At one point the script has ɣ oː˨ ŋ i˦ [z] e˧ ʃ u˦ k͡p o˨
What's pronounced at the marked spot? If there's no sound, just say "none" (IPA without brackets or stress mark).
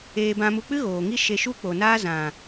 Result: ʃ